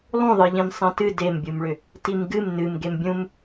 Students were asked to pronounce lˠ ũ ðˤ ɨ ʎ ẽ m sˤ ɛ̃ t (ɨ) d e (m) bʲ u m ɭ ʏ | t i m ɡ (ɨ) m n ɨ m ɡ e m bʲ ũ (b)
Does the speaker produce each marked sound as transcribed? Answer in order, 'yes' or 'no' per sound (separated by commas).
yes, yes, yes, no